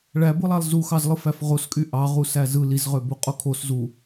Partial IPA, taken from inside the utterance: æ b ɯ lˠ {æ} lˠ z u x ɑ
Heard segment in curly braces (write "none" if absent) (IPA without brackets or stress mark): æ